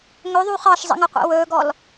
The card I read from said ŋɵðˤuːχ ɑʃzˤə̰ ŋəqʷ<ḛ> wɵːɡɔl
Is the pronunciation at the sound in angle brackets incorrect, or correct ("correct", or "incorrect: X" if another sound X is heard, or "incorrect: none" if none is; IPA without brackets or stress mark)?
correct